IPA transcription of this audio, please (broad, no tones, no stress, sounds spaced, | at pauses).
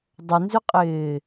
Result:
dˤ ʏ n z ʏ qʼ ɪː